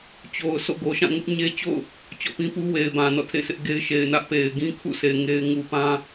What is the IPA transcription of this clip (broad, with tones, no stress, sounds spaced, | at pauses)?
t͡ɕ o˨ ʊ̯ s o̰˦˨ ɡ o˨ ʃ ã˦˨ ŋ ʊ˦ ʔ ɲ e˦ t͡ɕ o̰˦˨ ʊ̯ | t͡ɕ ɔ̰˦˨ p ĩ˦ p u˦ w e˨ ɪ̯ b ã˨ n ɔ̰˦˨ tʰ ḛ˦˨ s ɪ˦ ʔ ɡ e˦ ɪ̯ ʃ e˨ ɪ̯ n ä˦ ʔ p e˨ ɪ̯ ɡ ĩ˦ kʰ ṵ˦˨ s e˨ ɪ̯ ŋ e˦ ɪ̯ ŋ u˨ p ã˦